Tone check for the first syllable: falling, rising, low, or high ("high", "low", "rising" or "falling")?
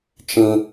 high